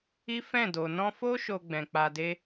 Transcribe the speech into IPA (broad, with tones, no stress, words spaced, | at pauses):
i˦fɛ̃˦˨do˨ nɔ̃˧fo˦ ʃo˧ɡ͡bɛ̃˨k͡pa˧de˦